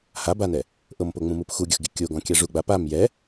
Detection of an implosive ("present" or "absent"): absent